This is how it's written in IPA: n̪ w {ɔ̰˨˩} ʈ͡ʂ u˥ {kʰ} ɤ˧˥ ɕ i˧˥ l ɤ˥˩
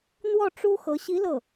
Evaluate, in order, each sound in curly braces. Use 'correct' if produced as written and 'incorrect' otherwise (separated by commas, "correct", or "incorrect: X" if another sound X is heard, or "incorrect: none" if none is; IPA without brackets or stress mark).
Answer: incorrect: ɔ˥˩, incorrect: x